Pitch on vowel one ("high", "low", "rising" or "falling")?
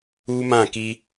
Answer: high